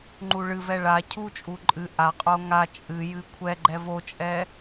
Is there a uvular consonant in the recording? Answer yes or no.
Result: yes